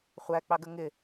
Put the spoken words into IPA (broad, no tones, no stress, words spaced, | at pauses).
χʷæk͡pɑɡə ŋɪ